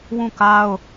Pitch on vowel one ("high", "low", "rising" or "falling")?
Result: falling